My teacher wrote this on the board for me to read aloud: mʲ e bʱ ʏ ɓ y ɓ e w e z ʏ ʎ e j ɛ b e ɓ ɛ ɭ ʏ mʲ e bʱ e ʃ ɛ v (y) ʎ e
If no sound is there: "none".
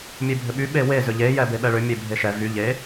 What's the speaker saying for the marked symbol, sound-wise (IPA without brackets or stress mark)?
y